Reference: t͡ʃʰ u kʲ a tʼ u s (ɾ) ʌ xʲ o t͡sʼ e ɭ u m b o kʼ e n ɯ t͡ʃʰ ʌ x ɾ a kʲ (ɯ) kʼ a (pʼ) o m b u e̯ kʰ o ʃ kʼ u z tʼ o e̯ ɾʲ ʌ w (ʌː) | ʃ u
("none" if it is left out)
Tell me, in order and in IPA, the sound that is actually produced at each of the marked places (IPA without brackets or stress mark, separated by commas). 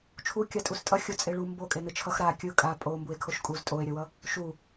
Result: tʼ, ɯ, pʼ, ʌ